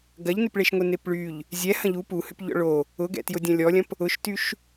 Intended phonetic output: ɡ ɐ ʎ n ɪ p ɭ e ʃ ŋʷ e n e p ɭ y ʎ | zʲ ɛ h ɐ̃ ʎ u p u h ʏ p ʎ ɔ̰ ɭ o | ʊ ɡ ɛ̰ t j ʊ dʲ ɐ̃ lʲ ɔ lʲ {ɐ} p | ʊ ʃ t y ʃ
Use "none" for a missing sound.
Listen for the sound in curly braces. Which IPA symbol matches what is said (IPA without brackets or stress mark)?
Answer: ɐ̃